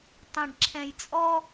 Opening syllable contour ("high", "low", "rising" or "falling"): low